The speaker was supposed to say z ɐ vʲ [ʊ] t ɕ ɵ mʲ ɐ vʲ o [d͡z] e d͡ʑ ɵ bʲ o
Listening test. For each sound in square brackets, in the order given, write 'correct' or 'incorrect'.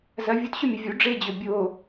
incorrect: u, incorrect: ɖ͡ʐ

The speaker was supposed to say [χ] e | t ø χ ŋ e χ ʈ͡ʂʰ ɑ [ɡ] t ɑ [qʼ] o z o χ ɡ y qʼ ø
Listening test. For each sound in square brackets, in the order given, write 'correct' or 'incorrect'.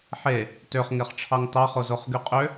incorrect: ħ, incorrect: ŋ, incorrect: χ

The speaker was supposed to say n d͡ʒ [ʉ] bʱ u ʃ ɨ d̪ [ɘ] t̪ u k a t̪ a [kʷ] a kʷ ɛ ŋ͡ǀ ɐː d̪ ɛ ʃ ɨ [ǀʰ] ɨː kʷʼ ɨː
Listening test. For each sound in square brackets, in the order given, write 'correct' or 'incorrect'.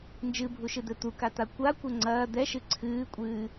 incorrect: ɨ, correct, correct, correct

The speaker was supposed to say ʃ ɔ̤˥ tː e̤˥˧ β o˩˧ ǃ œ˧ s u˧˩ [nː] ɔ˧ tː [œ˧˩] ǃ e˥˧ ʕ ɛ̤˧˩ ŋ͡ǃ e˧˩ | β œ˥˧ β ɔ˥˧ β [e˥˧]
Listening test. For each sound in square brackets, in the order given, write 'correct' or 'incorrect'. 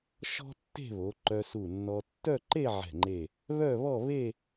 correct, incorrect: œ˥˧, correct

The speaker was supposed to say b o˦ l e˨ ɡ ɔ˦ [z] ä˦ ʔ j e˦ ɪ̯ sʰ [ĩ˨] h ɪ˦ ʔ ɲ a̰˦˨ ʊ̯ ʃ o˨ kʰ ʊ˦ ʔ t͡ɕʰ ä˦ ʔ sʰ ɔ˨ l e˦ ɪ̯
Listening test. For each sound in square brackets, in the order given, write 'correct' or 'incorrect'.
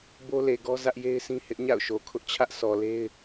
correct, incorrect: ĩ˦

